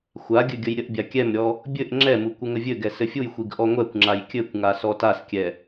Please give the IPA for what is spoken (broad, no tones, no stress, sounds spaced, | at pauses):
xʷ a ɡʲ ɘ ɡʲ ə j ɾʲ ə ʔ bʲ a kʲ ɛ m ɾʲ ɔ | bʲ ɘ ʔ ŋ͡ǁ ɛ m u kʷ ɘ ŋ ə vʲ ɘ ɡ ɛ s ɘ fʲ u j xʷ i ɡ ʔ ɔ ŋʷ ɛ kʷ ŋ͡ǁ a j kʲ ɘ kʷ ŋ a s ɔ t a s kʲ ɛ